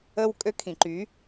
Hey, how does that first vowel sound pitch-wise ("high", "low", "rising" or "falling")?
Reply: high